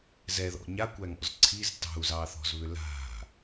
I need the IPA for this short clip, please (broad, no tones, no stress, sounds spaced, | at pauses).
z ɛ ð ɔ̰ ɲ a kʷ æ ŋ ɔ̰ z ǀʰ i z t ɑ̤ u̯ z ɑ θ ɔ̤ z β ʏ l a̤